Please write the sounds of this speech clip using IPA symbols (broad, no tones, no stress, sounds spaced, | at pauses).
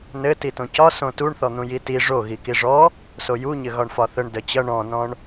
n ɘ t i t õ c ɒ s õ t u ɳ θ ɔ n̪ ũ j i t i ʐ o ɣ i k i ʐ ɔ | s o j u ɲ ɘ ɣ ɒ ɳ f ɒ θ ə ɳ d ə t͡ɕ ʌ ɳ ɔ̃ n ɔ̃ ɳ